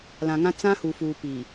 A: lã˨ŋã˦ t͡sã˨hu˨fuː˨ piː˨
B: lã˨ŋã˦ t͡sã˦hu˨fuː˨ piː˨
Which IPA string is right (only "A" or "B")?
B